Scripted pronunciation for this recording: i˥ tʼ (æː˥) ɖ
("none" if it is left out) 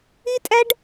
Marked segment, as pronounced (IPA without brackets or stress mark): æ˥